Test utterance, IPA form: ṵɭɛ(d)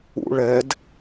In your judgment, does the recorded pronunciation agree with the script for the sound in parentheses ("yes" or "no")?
yes